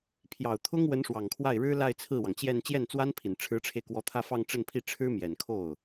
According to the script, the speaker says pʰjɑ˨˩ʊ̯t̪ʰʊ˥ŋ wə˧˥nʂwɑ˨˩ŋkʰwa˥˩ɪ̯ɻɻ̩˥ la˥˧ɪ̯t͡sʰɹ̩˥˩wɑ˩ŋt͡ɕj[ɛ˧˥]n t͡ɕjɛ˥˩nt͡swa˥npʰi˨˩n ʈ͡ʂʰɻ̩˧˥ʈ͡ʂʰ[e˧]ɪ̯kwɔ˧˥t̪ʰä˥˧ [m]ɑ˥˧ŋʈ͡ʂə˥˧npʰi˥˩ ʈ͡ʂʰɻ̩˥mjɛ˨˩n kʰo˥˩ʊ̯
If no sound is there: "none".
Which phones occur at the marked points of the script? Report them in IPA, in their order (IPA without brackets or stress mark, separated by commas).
ɛ˥˧, e˧, f